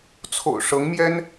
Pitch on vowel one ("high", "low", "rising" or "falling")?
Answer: low